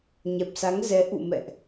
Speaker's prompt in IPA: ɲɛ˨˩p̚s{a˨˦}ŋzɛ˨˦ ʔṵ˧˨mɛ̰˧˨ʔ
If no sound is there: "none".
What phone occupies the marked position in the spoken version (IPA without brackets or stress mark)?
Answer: a˨˦